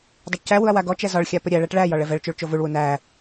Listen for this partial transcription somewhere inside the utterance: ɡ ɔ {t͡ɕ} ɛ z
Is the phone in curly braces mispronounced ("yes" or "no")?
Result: yes